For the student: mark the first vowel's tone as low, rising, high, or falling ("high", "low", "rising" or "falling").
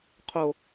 high